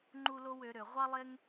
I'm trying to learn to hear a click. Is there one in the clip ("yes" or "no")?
yes